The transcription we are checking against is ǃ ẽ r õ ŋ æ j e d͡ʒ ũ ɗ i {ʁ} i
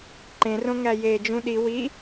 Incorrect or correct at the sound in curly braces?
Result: incorrect: w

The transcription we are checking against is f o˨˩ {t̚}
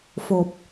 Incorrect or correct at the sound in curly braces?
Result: incorrect: p̚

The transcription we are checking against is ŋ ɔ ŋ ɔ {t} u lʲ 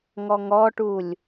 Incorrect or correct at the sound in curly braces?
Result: incorrect: ʈ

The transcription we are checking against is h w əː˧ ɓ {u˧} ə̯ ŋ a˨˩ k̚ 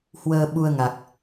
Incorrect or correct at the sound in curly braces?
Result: correct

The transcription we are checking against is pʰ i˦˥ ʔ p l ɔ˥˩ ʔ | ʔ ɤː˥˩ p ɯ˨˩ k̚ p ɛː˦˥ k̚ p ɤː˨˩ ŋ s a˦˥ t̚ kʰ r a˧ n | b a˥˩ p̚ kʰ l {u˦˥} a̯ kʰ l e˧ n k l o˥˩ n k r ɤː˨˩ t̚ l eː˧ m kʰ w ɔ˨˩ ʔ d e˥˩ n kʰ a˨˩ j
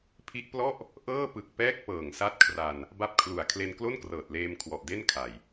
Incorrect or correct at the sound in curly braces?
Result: incorrect: u˨˩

